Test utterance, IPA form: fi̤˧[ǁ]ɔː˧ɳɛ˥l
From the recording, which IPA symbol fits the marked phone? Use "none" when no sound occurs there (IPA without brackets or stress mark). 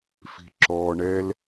ǁ